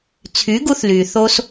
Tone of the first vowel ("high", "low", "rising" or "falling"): rising